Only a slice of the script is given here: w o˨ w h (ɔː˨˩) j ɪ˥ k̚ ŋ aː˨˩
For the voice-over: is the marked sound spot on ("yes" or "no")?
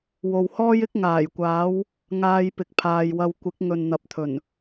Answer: no